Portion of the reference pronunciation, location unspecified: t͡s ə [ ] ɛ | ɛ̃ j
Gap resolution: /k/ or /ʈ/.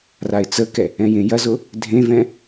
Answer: k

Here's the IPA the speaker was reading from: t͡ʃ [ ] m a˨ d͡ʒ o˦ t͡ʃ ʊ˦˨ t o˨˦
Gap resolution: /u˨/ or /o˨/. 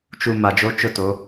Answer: u˨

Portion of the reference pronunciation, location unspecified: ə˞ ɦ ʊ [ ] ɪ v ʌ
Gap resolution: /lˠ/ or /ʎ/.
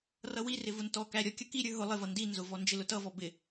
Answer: lˠ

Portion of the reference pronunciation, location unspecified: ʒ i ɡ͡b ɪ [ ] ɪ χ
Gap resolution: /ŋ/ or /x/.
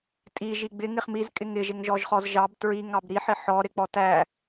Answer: ŋ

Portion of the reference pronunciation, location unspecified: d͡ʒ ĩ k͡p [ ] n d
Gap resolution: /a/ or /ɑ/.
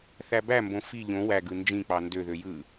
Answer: ɑ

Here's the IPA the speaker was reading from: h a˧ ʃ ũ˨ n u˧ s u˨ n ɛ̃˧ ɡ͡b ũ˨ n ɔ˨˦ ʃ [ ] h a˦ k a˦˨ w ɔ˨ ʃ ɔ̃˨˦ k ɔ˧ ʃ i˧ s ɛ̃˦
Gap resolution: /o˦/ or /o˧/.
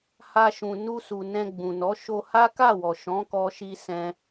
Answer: o˧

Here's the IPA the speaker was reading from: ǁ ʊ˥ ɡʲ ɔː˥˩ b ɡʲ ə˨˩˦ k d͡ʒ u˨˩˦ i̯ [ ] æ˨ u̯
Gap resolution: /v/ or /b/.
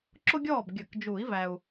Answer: v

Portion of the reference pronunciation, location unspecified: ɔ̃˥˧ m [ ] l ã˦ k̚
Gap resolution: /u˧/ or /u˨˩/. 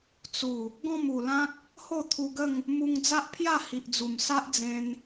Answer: u˨˩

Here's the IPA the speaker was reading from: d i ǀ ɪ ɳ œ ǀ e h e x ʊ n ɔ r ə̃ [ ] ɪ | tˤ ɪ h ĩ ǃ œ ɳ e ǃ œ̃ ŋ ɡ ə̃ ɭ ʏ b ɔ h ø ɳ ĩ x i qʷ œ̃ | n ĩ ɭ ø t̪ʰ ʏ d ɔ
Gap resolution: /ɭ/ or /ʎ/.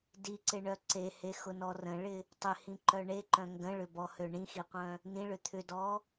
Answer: ɭ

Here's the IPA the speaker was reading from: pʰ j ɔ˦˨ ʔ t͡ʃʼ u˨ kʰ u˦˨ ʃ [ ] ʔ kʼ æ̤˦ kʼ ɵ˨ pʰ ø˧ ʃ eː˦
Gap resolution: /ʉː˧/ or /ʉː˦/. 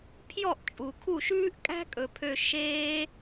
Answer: ʉː˦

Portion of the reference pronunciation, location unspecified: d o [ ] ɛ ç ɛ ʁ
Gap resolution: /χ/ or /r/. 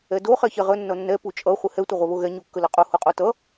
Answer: χ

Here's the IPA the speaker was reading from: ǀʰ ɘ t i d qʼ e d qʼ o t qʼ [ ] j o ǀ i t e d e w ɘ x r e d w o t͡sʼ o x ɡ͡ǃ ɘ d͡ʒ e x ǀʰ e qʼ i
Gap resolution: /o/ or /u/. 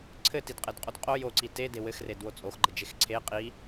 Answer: o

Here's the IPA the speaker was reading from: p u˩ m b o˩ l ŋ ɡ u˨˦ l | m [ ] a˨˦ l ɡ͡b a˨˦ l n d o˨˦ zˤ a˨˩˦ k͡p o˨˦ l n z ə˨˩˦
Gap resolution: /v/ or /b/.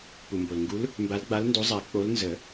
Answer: b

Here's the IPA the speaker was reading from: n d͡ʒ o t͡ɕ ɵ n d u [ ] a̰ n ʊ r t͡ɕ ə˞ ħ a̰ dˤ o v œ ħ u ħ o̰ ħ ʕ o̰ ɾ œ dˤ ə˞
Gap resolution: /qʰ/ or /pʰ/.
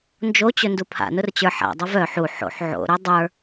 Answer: pʰ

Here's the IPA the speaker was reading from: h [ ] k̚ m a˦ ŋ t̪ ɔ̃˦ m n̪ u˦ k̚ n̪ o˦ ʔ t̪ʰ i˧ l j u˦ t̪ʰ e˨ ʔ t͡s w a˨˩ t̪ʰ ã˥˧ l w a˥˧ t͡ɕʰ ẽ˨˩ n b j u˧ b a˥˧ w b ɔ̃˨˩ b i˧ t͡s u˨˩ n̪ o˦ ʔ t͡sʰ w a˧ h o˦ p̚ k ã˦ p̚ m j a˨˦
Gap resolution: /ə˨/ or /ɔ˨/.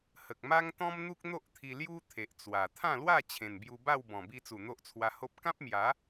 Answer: ə˨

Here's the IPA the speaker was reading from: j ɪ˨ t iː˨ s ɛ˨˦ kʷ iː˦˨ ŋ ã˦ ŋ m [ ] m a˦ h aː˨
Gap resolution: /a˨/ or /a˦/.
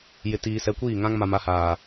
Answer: a˨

